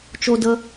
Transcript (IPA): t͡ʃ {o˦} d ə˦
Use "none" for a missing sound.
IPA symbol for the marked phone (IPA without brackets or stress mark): o˦